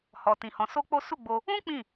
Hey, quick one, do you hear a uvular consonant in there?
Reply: no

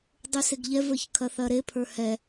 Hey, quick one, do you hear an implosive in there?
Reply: no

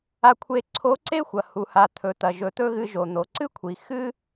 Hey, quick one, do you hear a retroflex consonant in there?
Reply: no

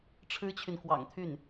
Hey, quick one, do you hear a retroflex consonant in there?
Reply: yes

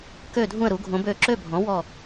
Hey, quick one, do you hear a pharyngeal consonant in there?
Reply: no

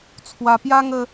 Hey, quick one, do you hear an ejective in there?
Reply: no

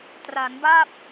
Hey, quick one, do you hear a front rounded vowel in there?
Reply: no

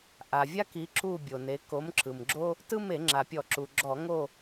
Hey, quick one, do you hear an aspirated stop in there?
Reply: no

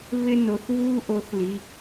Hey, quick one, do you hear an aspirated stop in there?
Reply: no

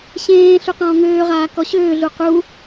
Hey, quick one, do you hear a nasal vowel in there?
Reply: yes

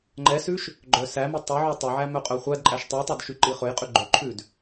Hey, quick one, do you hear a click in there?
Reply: yes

